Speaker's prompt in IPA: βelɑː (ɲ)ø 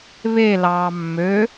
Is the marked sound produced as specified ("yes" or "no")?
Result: no